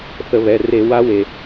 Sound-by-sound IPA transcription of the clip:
θə˧˩˧βɛ˩˧˩ re˧˩˧ wa˧˥we˩

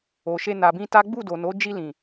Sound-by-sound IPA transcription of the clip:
o˨ʃe˧ na˨bĩ˧ ta˦ ɡ͡bu˦˨do˨no˨˦ d͡ʒi˧lĩ˨

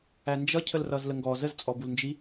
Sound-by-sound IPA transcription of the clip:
ænd͡ʒʌcʰəlrʌz ləŋɡɔ zəzt͡sʼɔbulnd͡ʒi

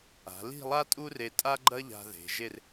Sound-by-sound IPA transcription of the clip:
a̤˩˧li̤˥˧lˠa˥ tʼu˥re˧tʼa˥ɡ͡ǃɐ˥ ʎa̤˧ðe̤˩˧ʒe˥˧r

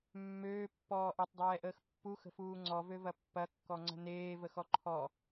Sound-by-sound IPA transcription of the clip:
mːøːpːɔː ʔɐtˤdˤɛːʔəːx pːuxə̤fuː ŋ͡ǀɔvøvɐ pːɐkːɔŋ͡ǀə̤ neːvəxɔ ǃʰɔ

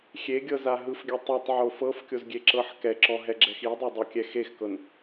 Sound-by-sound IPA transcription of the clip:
xʲeɡʲɤza ɦɯfɡʲa tˤɯtˤʕo fɤfkʲozɡʲeǁɤħ kɛǁɔɦɛɡ͡ǁɛx idˤodˤokʲɛ xexkɤn

